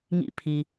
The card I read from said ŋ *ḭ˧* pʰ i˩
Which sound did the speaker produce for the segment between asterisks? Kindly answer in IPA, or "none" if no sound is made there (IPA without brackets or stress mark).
ḭ˧